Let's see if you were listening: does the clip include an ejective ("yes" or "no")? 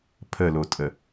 yes